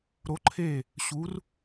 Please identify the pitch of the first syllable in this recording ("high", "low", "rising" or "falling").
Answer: rising